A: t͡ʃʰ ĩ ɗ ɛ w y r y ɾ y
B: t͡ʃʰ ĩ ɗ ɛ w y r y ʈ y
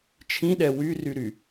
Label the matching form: A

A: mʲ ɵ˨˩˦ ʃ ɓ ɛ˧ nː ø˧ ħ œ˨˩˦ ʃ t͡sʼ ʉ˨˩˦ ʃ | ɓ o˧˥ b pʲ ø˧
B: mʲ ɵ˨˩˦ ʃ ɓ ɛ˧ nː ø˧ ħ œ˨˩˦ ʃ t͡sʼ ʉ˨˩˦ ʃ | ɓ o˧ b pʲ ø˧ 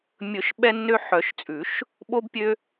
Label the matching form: B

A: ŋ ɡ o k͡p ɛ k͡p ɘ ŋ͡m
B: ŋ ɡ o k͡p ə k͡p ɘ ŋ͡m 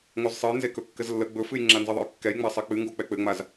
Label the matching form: A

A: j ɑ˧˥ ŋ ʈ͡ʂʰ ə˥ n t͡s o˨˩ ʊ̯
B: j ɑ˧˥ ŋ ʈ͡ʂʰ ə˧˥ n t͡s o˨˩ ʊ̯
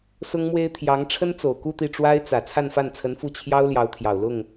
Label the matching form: A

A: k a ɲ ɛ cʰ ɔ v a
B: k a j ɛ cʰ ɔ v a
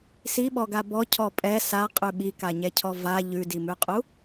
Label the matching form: A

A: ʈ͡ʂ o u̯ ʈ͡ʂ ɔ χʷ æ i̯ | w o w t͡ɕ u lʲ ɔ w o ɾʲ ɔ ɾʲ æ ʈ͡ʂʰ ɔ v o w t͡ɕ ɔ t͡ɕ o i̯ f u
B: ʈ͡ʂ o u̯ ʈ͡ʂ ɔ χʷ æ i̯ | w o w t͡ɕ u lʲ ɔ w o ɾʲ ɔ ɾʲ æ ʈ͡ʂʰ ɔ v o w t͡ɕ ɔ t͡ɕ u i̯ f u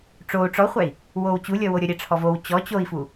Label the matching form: A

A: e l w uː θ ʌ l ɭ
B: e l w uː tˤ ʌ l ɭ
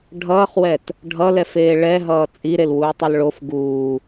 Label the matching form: B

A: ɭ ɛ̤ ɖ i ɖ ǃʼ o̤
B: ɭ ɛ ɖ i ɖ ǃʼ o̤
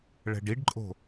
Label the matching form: A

